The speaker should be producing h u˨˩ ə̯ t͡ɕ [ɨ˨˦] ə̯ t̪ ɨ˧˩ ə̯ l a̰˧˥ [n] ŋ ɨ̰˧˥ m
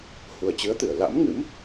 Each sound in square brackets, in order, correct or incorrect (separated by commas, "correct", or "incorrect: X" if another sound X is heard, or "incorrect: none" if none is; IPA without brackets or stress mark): correct, incorrect: m